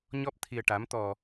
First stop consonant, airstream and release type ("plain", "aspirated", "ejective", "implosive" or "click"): plain